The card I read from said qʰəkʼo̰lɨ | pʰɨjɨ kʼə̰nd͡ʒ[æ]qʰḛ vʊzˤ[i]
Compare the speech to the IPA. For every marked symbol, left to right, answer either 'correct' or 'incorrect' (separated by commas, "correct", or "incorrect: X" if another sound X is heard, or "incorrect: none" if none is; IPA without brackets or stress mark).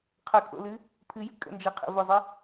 incorrect: ɛ, incorrect: ɨ